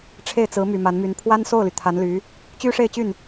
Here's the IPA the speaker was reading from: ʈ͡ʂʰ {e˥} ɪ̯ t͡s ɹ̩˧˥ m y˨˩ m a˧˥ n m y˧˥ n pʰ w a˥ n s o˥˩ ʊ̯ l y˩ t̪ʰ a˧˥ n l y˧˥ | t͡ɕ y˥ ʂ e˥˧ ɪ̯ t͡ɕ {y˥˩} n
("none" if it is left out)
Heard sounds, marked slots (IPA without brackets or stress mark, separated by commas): e˥˩, y˥˩